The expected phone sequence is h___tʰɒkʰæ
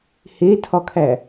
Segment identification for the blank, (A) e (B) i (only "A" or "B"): A